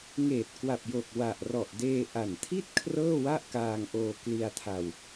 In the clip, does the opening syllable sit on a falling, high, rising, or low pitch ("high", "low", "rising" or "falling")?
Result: low